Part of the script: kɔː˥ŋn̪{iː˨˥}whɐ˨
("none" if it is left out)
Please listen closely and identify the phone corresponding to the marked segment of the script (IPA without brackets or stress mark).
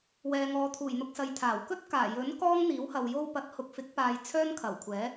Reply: iː˨˥